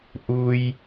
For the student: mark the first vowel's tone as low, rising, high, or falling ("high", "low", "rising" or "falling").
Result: low